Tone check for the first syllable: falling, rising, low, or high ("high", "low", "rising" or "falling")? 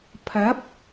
rising